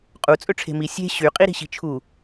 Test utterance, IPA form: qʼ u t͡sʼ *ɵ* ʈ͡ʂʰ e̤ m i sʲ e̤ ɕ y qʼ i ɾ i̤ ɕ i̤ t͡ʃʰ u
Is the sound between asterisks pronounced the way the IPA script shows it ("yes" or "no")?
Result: yes